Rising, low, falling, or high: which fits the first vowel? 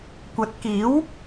rising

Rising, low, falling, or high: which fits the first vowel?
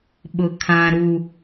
low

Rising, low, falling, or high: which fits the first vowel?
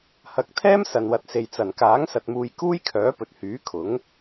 rising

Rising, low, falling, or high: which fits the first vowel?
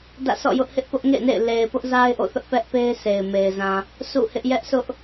falling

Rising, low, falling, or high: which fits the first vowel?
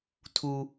high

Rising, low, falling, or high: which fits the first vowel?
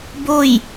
falling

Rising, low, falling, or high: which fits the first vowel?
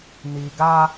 low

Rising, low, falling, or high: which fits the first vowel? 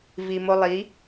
low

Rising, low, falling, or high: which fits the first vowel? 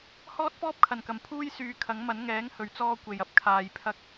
high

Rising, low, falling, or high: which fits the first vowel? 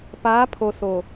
rising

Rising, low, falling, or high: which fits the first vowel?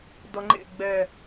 low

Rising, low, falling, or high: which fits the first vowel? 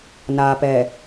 low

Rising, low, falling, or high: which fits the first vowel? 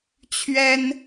high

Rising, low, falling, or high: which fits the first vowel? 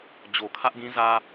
low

